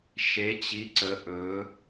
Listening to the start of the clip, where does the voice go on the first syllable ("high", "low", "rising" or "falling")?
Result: rising